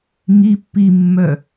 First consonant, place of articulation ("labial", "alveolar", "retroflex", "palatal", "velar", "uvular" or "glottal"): velar